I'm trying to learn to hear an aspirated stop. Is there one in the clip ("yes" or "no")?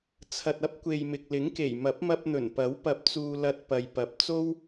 yes